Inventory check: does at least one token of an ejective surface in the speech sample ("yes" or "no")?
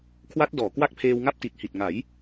no